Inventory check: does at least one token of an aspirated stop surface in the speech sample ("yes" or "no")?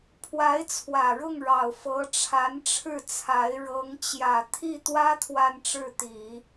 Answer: yes